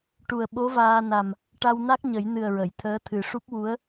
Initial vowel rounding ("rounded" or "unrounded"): rounded